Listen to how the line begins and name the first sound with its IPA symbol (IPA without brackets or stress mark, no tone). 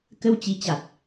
k